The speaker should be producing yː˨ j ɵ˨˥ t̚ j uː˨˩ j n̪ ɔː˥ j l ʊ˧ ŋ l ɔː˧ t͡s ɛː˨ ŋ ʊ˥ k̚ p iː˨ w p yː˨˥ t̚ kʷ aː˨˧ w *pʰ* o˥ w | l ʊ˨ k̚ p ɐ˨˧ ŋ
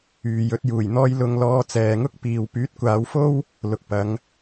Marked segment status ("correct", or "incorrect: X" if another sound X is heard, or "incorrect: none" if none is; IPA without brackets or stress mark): incorrect: f